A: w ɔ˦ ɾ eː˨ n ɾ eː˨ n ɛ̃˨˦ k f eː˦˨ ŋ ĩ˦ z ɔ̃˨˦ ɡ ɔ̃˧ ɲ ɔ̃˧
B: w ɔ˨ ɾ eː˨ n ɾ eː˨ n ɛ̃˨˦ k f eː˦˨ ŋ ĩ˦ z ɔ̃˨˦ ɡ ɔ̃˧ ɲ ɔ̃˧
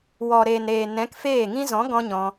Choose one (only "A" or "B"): B